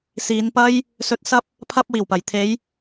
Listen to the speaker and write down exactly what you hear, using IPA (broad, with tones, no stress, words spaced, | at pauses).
siː˨˧n pɐ˧j | sɵ˨˥t̚sɐ˧p̚ | pʰɐ˥p̚ wiː˨˩wpɐ˨˩j t̪ʰe˨˧j